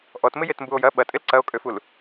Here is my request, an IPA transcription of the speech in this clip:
ʔ ɔ t m ɪ j e t m b u o̯ j ɐ ɓ ɐ tʼ ɪ l ǀ ɐ o̯ kʼ ø f u l

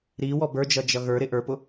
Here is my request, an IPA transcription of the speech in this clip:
ɾ i w ɔ b ə˞ d͡ʒ ʌ d͡ʒ ʌ ɣ ə˞ ɾ ɪ ʔ ə˞ p ʊ

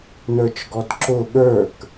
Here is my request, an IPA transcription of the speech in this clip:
n ə˞ t͡ʃ ɡ ɔ d ǁ ʊ ɠ ə˞ k

